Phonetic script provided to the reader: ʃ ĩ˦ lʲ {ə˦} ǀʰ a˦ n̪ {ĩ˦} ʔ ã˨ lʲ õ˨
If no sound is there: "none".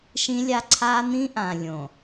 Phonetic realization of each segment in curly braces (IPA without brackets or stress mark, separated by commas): a˦, ĩ˦